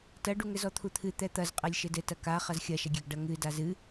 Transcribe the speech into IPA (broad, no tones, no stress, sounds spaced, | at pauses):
t ɐ ɖ u ŋ ɘ z ɔ t̪ʰ u t̪ʰ ɨ t̪ ɛ t̪ ɐ z qʼ ɛ lʲ ʃ ɘ d ɘ t ɐ k a χ ɐ z xʲ ɐ ʃ ɐ ɡʲ ɛ ɡ ɖ ɐ ŋ ɨ d a z ɨ